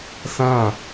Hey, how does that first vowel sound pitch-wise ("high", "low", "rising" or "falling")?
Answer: falling